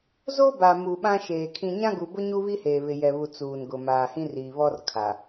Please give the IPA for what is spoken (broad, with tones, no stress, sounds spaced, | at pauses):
z o˦ b a˨ m u˨ ɓ ã˦ ʃ eː˨ kʰ ĩ˨ ɲ ã˦ ɡ u˨ b ʊ˦ ɲ u˦ β i˦ h eː˨ β ɪ˨ j ɛ˨ β u˨ t͡s uː˨ n ɡ ʊ˨ m aː˨ h ĩ˦ r iː˨ β ɔ˦ r kʰ a˨